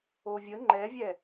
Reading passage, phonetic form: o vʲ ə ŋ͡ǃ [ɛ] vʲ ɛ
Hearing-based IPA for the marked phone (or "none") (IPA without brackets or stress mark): ɛ